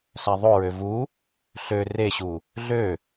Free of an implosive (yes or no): yes